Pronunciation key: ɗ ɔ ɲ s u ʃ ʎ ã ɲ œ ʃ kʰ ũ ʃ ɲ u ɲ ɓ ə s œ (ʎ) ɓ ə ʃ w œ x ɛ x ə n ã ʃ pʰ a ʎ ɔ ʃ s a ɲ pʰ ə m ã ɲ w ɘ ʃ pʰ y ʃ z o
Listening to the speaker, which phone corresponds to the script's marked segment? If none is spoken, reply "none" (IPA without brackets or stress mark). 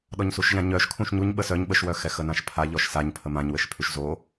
ɲ